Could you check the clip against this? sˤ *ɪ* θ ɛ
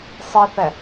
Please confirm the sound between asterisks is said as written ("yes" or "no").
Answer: yes